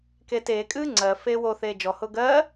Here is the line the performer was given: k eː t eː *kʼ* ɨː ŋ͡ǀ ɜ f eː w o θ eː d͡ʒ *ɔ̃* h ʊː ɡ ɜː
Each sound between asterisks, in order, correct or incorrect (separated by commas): correct, incorrect